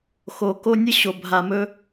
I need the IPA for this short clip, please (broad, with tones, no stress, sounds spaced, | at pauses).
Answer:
x o˨ k o˧ nʲ ə˦ ɕ o˨ bʱ a˨ m ɵ˦